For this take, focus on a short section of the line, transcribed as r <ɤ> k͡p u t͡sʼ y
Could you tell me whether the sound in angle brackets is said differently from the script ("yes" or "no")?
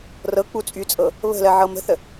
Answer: no